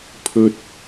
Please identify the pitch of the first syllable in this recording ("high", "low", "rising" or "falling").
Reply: high